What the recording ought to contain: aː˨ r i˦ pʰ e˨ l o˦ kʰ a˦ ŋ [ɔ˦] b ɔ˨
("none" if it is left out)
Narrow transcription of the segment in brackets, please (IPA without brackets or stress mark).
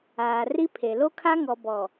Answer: ɔ˨